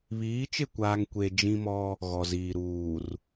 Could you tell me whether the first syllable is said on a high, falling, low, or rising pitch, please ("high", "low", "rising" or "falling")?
rising